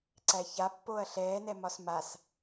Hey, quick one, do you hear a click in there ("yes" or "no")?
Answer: yes